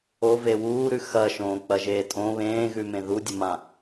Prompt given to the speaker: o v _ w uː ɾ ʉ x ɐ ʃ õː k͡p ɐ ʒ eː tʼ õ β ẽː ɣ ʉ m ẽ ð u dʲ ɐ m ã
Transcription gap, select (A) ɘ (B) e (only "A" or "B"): B